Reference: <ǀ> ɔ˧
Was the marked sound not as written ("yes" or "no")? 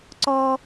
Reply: no